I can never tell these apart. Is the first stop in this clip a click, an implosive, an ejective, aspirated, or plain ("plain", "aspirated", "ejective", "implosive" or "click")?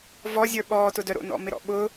implosive